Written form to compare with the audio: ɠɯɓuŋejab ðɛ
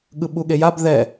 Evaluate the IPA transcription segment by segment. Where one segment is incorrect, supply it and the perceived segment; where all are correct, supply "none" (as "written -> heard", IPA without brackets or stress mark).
ŋ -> ɠ